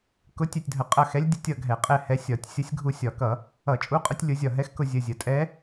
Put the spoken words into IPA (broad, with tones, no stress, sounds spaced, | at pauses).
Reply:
k ʊ˧˥ tʲ ɛ˦˨ tʲ dʱ ə˧˩˧ qʼ ʌ˦˨ x ɛ˧˥ lʲ dʲ ə˦˨ tʲ ʌ˦˨ ɡʱ ɛ˧˩˧ qʼ ɛ˦˨ h ɛ˧˥ sʲ ɒ˧˩˧ tʲ sʲ ʌ˧˥ sʲ ɡʱ u˦˨ sʲ ɒ˧˩˧ k ʌ˧˩˧ | ʌ˧˩˧ t͡ʃʼ u˧˥ qʼ ʌ˧˥ tʲ lʲ ʊ˧˥ zʲ ɒ˦˨ ɦ ɛ˧˥ x k ʊ˦˨ zʲ ə˦˨ zʲ ə˧˩˧ tʼ ɛ˧˥